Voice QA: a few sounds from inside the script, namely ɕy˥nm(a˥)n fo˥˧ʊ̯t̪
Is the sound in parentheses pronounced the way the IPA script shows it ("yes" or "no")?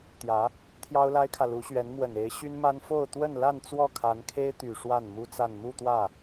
yes